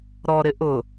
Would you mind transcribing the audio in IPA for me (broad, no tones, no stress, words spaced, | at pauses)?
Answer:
ɾɔɾɪ ʔʊ